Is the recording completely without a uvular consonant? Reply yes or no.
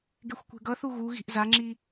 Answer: yes